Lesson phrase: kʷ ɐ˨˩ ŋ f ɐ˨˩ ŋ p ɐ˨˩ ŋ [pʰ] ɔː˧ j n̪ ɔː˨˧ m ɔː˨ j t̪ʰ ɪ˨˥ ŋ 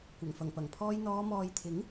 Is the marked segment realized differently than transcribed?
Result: no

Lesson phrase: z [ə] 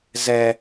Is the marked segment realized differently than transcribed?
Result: yes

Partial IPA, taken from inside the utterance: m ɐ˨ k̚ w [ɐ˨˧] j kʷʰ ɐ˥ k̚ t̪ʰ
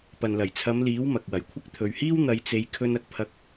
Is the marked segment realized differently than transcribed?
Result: yes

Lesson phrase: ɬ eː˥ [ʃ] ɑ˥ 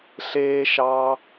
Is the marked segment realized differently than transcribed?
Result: no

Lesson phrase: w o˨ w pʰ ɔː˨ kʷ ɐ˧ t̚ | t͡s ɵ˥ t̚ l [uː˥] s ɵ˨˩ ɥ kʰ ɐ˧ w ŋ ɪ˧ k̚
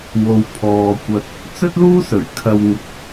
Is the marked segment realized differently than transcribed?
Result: no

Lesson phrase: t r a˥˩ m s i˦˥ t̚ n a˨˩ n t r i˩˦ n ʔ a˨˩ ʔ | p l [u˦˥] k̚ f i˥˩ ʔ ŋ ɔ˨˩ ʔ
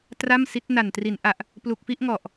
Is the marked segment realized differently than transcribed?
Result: yes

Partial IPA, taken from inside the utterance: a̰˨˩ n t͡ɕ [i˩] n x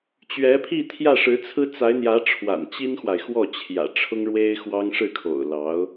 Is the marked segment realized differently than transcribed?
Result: yes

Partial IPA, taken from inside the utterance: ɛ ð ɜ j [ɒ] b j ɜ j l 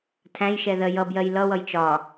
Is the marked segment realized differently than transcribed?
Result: yes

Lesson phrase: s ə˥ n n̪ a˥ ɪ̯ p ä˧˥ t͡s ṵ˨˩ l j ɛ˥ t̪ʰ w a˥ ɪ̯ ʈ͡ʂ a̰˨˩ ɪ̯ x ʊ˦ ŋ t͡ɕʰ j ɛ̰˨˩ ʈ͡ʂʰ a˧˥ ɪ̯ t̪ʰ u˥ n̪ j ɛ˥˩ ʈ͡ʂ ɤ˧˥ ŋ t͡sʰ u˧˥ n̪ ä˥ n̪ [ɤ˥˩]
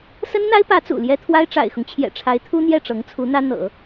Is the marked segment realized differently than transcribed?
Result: yes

